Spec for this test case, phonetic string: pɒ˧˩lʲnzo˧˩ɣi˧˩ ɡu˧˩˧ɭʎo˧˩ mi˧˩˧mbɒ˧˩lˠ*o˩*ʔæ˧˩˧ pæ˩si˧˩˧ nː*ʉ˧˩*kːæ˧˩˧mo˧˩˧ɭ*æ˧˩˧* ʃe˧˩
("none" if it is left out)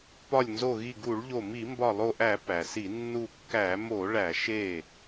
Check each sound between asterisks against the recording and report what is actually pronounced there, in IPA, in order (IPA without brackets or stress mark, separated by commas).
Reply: o˧˩, u˧˩, æ˧˩˧